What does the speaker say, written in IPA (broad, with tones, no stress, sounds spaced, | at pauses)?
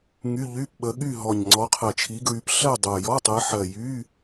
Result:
ŋ y˧˥˧ ʎ y˧˥˧ p ɓ ə˨˦ ɠ y˥˨ ɦ ɔ˨˩ ɲ ŋ͡ǀ ɔ˨˦ qʰ ɜ˨˩ t͡ʃʰ i˨˦ ɡ ɹ y˨˦ p ɬ ɜ˥˨ dˤ o˨˩ j ɔ˧˥˧ tˤ ɜ˨˦ ħ ɜ˨˩ j y˧˥˧